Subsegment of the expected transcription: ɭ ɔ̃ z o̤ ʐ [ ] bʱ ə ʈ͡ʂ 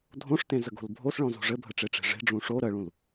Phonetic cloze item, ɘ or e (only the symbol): ɘ